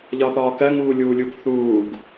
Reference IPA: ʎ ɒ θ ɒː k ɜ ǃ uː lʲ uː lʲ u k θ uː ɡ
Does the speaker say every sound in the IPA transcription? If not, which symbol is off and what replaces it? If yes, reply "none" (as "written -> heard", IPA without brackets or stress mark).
ǃ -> ŋ